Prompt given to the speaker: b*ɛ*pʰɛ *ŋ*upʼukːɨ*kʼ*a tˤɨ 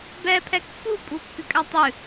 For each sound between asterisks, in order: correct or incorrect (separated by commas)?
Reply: correct, incorrect, correct